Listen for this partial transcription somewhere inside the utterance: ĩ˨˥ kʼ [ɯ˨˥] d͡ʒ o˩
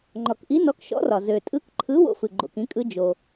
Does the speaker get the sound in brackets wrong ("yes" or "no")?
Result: no